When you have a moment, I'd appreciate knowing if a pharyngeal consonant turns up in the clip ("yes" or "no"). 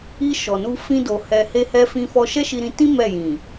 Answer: no